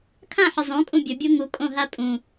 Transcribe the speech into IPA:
kʰ ã ħ ə zˤ õ kʼ ũ bʲ ə bʲ o ŋ u kʼ õ ɦ a pʼ ũ

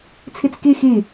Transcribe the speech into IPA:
t͡sʰ i t͡s k i x i

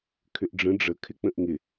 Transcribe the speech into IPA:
kʰ ʏ ʔ ɖ͡ʐ ə̃ ɖ͡ʐ ə kʰ ɪ k͡p ə̃ ʔ ŋ ɪ

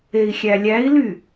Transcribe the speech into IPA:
e i̯ xʲ æ lʲ æ i̯ l y

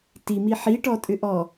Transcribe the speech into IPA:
t i m i ħ i ʈ ɔ tʼ ʏ ʔ ɔ

